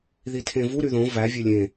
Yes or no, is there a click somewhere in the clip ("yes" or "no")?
no